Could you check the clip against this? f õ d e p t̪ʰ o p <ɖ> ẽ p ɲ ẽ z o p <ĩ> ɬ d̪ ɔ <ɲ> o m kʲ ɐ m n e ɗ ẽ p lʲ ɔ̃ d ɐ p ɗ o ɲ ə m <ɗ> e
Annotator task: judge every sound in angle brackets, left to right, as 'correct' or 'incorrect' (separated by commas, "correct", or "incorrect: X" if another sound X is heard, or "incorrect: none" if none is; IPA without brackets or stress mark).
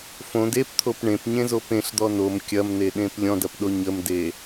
incorrect: ɳ, incorrect: ẽ, incorrect: n, incorrect: d